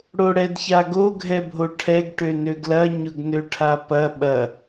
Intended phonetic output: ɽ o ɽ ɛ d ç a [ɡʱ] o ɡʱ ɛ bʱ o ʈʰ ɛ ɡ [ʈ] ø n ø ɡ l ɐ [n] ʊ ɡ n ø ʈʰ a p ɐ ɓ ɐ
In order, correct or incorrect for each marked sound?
incorrect: ɡ, correct, incorrect: ɲ

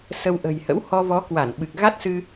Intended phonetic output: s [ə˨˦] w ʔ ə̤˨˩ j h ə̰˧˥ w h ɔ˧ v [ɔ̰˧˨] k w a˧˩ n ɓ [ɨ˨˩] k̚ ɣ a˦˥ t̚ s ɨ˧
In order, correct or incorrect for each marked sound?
incorrect: ə˧, incorrect: ɔ˨˦, correct

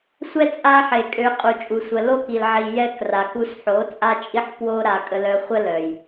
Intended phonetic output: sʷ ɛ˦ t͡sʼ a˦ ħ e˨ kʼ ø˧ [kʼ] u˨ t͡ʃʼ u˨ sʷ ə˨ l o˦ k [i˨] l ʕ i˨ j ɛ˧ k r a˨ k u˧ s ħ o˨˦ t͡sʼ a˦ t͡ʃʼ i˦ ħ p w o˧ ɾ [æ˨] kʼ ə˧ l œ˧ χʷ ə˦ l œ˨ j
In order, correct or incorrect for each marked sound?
incorrect: qʼ, correct, incorrect: a˨

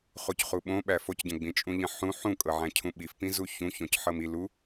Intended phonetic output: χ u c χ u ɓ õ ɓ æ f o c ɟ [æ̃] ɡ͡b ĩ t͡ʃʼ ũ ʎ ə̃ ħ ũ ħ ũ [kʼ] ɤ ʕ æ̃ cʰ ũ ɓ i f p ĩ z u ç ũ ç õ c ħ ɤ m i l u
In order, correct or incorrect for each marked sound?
incorrect: ə̃, correct

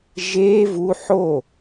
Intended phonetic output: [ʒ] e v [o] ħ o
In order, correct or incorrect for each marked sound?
correct, incorrect: u

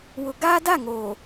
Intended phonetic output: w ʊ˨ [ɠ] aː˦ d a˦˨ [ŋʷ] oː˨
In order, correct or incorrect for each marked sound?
incorrect: ɡ, incorrect: ŋ

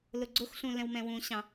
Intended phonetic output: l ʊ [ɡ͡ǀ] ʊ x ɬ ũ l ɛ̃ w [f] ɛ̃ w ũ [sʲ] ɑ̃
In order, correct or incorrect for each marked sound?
correct, incorrect: m, incorrect: ɕ

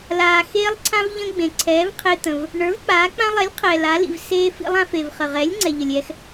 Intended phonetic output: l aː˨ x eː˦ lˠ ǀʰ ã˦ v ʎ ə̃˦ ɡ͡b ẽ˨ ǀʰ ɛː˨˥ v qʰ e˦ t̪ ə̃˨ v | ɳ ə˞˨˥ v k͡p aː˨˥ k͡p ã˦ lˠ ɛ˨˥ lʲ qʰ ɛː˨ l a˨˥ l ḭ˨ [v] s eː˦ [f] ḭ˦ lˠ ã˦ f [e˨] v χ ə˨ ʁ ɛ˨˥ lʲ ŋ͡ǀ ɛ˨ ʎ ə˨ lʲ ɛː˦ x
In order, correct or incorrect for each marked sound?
correct, correct, correct

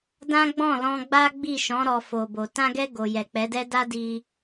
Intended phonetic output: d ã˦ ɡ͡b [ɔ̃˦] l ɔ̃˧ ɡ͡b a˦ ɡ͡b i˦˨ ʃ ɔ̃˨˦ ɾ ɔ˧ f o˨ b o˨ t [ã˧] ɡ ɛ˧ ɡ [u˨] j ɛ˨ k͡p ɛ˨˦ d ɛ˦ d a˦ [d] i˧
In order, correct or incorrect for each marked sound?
incorrect: ɔ̃˦˨, correct, incorrect: o˨, correct

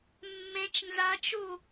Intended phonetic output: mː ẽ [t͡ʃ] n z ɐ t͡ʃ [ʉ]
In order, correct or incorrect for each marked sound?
correct, incorrect: u

